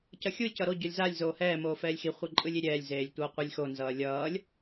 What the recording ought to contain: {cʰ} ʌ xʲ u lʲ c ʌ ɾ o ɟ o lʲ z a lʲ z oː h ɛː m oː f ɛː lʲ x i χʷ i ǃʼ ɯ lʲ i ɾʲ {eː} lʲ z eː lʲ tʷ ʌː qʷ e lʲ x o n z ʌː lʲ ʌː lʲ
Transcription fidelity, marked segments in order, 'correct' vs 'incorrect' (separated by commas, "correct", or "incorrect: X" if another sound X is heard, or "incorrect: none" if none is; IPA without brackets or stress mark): incorrect: c, incorrect: ɛː